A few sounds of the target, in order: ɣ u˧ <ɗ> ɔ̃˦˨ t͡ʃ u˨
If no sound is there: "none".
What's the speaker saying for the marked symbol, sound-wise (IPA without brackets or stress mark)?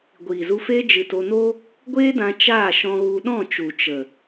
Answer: ɗ